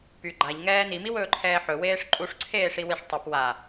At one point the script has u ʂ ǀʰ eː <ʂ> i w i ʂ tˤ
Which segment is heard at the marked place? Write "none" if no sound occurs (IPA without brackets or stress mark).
ʂ